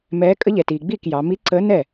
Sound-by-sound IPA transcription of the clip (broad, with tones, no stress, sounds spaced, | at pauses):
m ɛː˧˥ kʼ ə˧˥ ʎ ɛ˩ t iː˩ ɡ͡b iː˥˩ k j ɑ˩˧ m i˧˥ ǀ əː˧˥ n ɛ˥˩